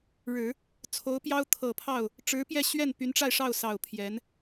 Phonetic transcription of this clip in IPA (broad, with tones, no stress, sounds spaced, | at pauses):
ɻ ɻ̩˨˩˦ | t͡sʰ o˧˥ ʊ̯ p j ɑ˥ ʊ̯ t̪ʰ ɤ˨˩ pʰ ɑ˥˩ ʊ̯ | ʈ͡ʂ ɻ̩˧˥ p j ɛ˥˧ ɕ ɥ ɛ˥˩ n p y˧˥ n ʈ͡ʂ a˥˧ ɪ̯ ʂ ɑ˥˩ ʊ̯ s ɑ˨˩ ʊ̯ pʰ j ɛ˧˥ n